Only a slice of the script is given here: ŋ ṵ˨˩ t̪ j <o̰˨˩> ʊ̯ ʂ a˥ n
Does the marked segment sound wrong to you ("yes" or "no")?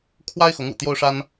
yes